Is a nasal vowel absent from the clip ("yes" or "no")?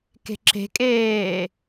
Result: yes